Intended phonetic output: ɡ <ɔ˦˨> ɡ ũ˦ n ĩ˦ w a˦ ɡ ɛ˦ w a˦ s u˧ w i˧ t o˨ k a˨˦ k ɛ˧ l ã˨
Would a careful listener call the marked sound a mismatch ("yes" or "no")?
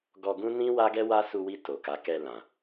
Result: yes